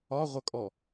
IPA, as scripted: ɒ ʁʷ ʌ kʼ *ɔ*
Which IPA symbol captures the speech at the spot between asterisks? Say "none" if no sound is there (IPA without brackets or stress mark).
ɔ